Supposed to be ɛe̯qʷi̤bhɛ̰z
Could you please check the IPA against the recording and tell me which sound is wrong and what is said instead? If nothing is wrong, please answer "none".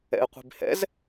ɛ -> ɛ̰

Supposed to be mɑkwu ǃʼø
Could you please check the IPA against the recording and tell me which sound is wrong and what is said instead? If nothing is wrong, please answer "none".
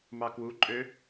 none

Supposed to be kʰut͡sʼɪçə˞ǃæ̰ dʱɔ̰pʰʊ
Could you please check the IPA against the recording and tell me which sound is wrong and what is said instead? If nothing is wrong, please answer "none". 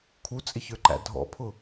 none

